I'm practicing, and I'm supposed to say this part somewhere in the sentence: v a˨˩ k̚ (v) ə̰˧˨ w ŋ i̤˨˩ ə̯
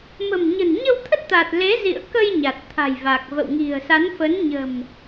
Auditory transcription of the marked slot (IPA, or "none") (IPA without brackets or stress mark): v